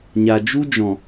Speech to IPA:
ɲa˨d͡ʒu˦d͡ʒɔ̃˨

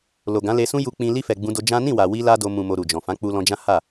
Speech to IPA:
lo˨ ɡã˨˦le˧sũ˦ ju˧k͡pĩ˧ li˧fɛ˨ ɡ͡bũ˧do˧d͡ʒã˦ nĩ˦˨wa˨wi˧ la˦do˧ mũ˨mo˨ ɾu˨d͡ʒɔ̃˨ fã˨˦ k͡pu˧lɔ̃˧d͡ʒã˦ ha˦˨

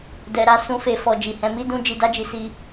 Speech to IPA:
dɛ˧ɾa˦ sũ˧fe˧ fɔ˧d͡ʒi˨hɛ̃˨˦ mi˦dũ˦ d͡ʒi˧da˦d͡ʒi˧ si˧

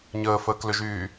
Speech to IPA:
ɲəːfəːklʏʒyː

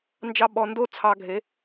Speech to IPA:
nd͡ʒɑ˧ɓɔ˨ndo˦ t͡sʰɑ˧ɡʱe˨˦

